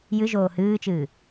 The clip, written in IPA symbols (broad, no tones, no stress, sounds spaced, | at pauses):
j ɨ ʒ oː h ɨː t͡ʃ ɨː